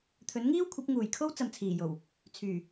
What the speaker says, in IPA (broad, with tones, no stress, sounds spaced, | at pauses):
t̪ʰ ɵ˨˥ n ŋ iː˥ w kʷʰ ɐ˨˥ p̚ ŋ uː˨˩ j kʰ o˥ w t͡s ɐ˨ m t͡sʰ iː˨˩ j o˨˩ w | t͡sʰ yː˨˩